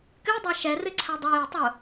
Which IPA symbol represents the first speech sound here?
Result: k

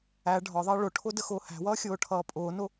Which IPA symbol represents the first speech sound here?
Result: æ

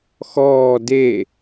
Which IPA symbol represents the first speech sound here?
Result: x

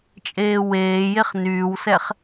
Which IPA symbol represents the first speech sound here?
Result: t͡ʃʼ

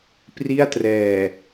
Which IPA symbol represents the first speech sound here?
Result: p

